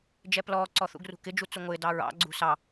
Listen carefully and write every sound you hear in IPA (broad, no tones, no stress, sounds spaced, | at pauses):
d͡ʒ ɛ p l ɔː ǀ ɔ θ ṵ ɡ r ṳ k ɪ d͡ʒ u t͡s u ŋʷ ɪː d ɑ ɹ ɑ̰ ɡ͡ǀ ṳ s ɑ